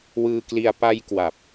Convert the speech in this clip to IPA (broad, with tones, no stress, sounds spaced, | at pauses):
w ɯː˧ k l i˧ a̯ p a˧ j k w a˨˩ p̚